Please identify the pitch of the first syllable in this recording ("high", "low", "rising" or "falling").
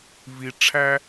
low